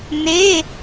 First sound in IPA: n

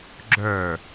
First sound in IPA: ɡ͡ǁ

